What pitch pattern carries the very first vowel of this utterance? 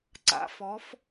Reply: rising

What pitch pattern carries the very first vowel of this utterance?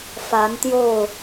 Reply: rising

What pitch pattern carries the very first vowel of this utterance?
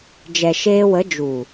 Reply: low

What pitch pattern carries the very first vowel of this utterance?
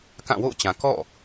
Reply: falling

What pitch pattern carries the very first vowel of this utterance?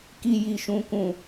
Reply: low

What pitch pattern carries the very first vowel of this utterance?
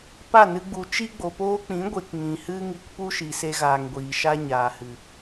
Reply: falling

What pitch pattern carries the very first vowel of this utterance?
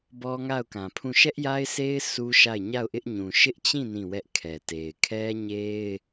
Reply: high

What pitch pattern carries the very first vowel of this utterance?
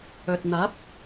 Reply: low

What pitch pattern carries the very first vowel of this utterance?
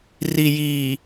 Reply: low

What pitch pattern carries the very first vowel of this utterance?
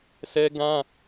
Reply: high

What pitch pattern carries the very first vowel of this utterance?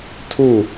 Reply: falling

